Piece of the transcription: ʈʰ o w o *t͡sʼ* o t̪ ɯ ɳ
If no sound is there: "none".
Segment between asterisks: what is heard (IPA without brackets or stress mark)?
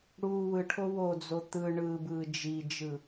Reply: d͡z